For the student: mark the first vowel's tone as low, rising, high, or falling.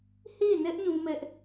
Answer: falling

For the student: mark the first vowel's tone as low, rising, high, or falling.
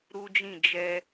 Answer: high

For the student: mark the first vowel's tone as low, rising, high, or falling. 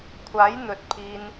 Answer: rising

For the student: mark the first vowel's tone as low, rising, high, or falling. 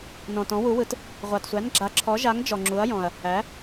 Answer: low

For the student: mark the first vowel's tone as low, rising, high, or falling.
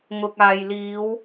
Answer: low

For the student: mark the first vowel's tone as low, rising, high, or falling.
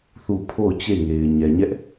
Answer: falling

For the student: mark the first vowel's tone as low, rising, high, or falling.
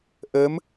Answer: rising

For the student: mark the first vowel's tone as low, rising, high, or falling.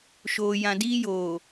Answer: low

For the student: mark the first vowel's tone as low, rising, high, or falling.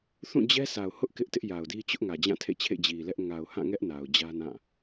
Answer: falling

